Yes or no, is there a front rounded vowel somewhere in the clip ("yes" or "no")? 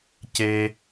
no